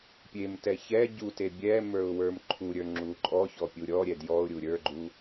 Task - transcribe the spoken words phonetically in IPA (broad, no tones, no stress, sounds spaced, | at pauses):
pʲ e m t ɛ ç ɛ ɟ u t e bʲ ɛ m ə˞ ʊ̯ w ə˞ m ǃʰ u ɾʲ ə˞ ŋ͡ǁ u ǃʼ ɔ ç ɔ pʲ u ɾʲ ɔ ɾʲ ɛ d j ɔ ʊ̯ ɾʲ u ɾʲ ə˞ ɡ͡ǃ u